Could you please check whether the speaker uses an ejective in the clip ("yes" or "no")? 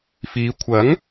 no